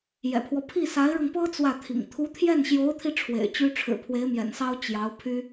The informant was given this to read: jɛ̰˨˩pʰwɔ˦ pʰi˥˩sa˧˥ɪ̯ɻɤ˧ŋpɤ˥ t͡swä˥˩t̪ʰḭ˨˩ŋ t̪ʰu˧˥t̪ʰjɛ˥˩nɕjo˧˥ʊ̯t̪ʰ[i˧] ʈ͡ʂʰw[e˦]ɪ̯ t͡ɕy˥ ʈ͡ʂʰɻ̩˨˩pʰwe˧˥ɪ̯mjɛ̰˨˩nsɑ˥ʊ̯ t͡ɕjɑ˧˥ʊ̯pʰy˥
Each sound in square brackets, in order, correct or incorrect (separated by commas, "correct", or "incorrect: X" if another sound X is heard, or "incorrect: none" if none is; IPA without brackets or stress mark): correct, incorrect: ḛ˨˩